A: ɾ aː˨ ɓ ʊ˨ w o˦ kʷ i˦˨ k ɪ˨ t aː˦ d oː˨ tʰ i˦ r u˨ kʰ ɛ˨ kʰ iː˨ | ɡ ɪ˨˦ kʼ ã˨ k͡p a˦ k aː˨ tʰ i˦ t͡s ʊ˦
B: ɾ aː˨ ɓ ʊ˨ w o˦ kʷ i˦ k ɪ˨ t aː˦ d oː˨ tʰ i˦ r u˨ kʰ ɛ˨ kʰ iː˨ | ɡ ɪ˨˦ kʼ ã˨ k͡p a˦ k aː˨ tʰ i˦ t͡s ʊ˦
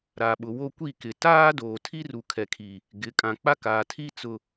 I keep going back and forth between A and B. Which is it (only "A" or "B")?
A